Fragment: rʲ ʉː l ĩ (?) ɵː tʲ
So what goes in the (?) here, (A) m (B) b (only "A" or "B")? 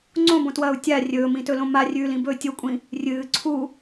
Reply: B